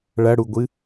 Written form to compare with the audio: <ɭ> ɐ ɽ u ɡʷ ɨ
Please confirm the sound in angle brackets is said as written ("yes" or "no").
yes